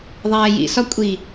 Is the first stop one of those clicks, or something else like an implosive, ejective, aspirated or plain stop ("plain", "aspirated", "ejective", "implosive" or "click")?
ejective